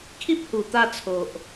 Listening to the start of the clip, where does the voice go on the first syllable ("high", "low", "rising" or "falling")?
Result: high